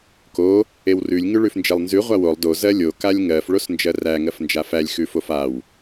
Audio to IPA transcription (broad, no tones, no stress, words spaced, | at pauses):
ko | ewrʉlʲ ŋʉɭʉfnd͡ʒelˠnzʉ ʁʷawolˠ do zɜlʲo kalʲŋɜf ɭosnd͡ʒɜræ ŋɜfnd͡ʒafælʲ xʉfofaw